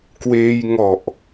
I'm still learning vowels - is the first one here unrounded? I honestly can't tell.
yes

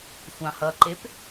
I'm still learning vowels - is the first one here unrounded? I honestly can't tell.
yes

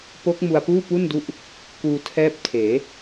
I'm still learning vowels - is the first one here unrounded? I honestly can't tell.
no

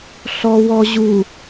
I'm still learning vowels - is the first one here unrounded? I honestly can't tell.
no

